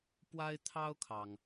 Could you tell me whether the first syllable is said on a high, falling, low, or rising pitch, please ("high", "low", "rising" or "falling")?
high